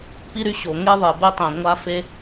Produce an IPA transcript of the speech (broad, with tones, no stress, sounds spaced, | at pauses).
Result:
p i˥ ɾ y˥ ɕ o˩ ŋ e˥ ðˤ e˩ b e˥ tˤ ɛ̃˩ ŋʷ a˥ f e˥